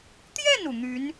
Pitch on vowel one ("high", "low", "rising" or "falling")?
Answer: falling